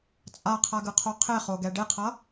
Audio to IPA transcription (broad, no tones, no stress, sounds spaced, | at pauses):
t͡sʼ a qʰ a ɡ ɯ qʰ o qʰ e χ o ɡ ɛ ɖ e qʰ ʌ